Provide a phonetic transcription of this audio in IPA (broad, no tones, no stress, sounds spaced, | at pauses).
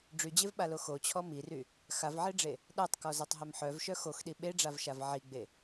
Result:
ɖ͡ʐ y d͡ʑ e v ɓ a l o x o t͡ɕʰ ɔ m i r y | x a v ʕ e ɖ͡ʐ e | ɗ a tˤ k ɔ z a tˤ ɦ œ m ħ œ v ʃ œ x o x ɗ i ɓ e ɖ͡ʐ a v ʃ a v ʕ i ɡ͡b e